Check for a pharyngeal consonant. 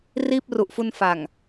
absent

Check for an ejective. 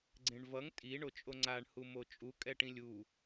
present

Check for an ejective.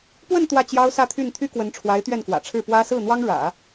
absent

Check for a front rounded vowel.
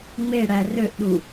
present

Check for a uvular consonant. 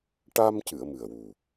absent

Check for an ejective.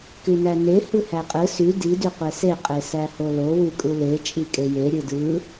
present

